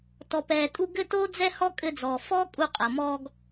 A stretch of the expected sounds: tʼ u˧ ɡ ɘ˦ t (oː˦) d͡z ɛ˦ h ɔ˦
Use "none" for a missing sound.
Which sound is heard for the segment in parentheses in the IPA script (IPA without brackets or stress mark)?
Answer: oː˦